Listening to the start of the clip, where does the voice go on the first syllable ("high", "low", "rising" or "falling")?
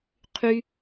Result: high